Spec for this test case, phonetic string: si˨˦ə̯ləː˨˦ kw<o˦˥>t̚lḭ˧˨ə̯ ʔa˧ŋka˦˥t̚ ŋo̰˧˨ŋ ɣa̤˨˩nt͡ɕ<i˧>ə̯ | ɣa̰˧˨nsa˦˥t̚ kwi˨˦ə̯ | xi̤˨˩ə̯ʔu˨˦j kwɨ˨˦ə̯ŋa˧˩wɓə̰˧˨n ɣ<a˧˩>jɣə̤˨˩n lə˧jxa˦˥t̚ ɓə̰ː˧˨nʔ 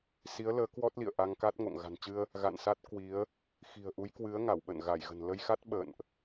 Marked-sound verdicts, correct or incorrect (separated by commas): incorrect, incorrect, correct